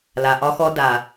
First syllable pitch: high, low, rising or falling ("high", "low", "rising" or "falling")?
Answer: low